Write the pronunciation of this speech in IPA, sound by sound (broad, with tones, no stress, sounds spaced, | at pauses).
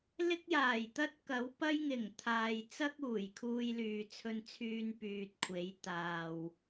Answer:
l ɪ˥ k̚ j aː˨˩ j t̪ ɐ˥ t̚ k ɐ˨˥ w p ɐ˥ j ŋ ɪ˨˩ ŋ t̪ʰ aː˨ j t͡s ɐ˥ k̚ uː˨˩ j kʰ uː˧ j l yː˨ t͡sʰ ɵ˧ n t͡sʰ yː˧ n p yː˨ t̚ kʷʰ e˨˧ j t̪ aː˨ w